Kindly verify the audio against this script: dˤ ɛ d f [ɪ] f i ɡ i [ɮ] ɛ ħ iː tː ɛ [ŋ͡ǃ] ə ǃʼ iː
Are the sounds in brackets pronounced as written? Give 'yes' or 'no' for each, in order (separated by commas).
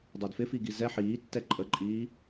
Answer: yes, no, no